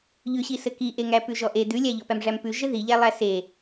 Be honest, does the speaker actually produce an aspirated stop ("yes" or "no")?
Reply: no